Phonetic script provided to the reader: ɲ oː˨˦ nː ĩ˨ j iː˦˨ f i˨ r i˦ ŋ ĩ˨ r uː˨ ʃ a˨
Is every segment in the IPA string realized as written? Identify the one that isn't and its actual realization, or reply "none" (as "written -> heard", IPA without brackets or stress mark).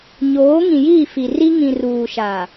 nː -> ŋ